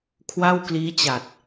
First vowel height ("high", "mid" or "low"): low